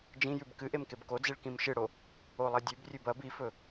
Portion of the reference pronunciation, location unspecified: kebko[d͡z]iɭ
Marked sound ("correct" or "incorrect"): correct